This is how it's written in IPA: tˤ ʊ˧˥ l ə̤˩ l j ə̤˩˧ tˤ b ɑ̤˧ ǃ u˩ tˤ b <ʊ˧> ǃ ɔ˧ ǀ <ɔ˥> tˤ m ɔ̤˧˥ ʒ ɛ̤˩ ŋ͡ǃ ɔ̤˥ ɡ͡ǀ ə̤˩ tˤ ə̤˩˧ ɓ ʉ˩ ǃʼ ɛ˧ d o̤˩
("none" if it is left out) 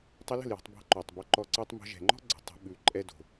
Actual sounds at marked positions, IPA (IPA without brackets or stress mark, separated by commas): ɔ˧, ɑ˥